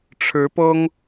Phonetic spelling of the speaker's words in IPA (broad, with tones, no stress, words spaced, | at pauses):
ʈ͡ʂʰɻ̩˨˦ pɤ˦ŋ